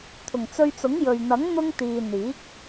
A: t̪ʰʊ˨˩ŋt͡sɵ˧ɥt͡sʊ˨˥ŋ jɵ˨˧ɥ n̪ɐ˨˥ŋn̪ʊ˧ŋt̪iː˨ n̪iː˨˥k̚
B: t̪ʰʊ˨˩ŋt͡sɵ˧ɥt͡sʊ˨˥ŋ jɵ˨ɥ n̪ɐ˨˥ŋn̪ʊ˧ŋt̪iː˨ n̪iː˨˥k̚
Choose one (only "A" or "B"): B